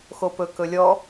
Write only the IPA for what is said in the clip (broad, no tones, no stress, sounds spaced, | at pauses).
x o p ɵ k ɵ lʲ ɔ